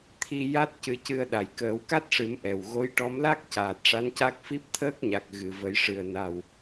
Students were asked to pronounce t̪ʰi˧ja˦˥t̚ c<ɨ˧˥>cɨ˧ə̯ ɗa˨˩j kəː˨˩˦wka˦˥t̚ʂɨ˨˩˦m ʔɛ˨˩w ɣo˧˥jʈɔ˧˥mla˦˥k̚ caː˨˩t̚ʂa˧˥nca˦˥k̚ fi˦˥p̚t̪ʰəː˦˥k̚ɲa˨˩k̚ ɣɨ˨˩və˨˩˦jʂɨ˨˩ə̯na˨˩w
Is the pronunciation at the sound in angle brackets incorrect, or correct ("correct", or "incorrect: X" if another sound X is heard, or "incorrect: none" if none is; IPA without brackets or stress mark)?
correct